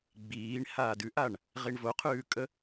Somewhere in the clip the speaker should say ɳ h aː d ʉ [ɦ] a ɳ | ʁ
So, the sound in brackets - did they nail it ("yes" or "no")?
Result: no